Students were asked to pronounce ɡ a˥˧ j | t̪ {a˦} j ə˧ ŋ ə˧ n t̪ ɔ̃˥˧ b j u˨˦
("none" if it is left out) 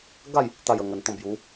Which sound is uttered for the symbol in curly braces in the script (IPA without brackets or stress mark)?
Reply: a˥˧